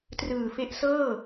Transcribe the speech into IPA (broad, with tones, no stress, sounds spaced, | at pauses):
t r ɯː˨˩ f e˦˥ ʔ s ɤː˥˩